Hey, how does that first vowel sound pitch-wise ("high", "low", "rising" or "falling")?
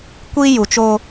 high